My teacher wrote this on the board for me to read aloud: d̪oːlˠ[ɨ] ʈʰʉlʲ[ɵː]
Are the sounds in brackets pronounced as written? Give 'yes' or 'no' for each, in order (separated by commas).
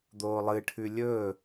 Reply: yes, yes